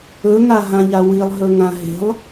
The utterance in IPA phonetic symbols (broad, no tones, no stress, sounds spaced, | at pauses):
ɵ ŋ a ɦ ã ʎ a w i lˠ ɦ ɵ ŋ ã ɦ e̤ lˠ